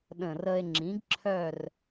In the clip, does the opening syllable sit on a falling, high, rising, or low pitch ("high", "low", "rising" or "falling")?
low